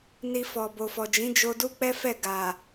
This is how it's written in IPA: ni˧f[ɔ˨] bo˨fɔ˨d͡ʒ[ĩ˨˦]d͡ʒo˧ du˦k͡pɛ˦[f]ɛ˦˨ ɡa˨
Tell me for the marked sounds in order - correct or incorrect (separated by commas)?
correct, correct, correct